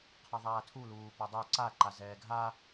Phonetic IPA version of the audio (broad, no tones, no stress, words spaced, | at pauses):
qʰʌðˤaːtʰu luːpʌdˤɜ ǀa ǃazɛːɡʱa